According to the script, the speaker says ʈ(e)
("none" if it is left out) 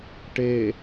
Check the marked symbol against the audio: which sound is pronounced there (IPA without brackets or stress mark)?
e